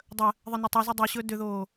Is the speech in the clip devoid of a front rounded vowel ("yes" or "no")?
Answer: no